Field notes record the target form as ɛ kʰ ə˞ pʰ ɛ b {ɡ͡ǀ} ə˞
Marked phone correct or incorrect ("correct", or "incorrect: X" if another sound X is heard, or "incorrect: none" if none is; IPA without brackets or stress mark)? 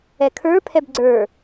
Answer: correct